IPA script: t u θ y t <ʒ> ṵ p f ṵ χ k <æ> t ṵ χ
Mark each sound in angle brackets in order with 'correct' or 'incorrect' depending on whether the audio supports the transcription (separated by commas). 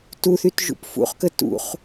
correct, incorrect